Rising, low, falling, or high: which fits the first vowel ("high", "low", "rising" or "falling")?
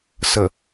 low